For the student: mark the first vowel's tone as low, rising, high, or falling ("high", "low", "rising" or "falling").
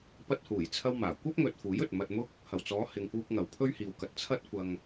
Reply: high